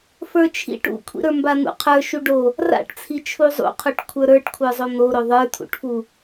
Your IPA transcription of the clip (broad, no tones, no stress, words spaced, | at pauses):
fə˞t͡ʃʰḭʈ ṵkʷʰḭɾə˞mba n̪ṵqʰə˞ ʃuɖo | ra̰ʈt͡sʰi t͡ʃʰuzˤṵqʰoʈ kʷʰə˞ɾə˞ʈkʷʰə˞zˤo n̪oɾo ðˤə˞t̪ʰṵʈfu